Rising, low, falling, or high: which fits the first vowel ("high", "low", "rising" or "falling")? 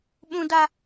low